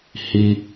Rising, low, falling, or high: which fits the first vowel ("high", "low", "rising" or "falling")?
high